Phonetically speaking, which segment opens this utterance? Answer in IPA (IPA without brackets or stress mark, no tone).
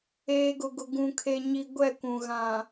eː